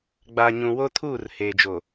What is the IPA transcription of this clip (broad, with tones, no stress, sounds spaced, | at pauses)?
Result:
ɡ͡b a˨ ɲ ũ˨ w o˦ tʰ uː˦˨ r h eː˨ d͡ʒ o˨